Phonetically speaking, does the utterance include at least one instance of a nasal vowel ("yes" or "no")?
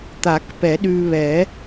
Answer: no